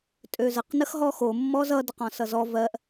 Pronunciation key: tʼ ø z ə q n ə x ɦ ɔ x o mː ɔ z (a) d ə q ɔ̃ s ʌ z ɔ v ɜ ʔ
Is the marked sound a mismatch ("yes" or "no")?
yes